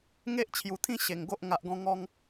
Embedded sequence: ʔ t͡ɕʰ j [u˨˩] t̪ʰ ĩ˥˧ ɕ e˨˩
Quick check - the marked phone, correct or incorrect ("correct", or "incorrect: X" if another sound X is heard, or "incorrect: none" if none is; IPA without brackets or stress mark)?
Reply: correct